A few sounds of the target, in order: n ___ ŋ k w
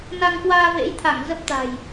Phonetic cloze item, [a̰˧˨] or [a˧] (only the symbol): a˧